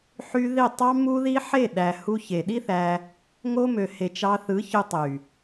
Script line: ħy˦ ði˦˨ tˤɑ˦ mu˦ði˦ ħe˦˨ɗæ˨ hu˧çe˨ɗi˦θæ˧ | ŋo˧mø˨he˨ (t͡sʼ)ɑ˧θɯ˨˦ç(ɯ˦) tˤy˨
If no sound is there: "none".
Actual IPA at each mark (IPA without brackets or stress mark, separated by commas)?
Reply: t͡ʃ, ɯ˧